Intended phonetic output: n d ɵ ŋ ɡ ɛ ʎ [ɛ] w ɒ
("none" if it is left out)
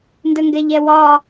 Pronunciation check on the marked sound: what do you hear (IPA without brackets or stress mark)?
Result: ɛ